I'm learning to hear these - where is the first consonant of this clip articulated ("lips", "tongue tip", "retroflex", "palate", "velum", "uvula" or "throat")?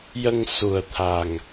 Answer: palate